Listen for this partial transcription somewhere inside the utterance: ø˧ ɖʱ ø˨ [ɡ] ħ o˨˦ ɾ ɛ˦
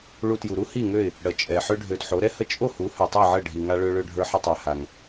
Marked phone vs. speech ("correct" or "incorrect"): incorrect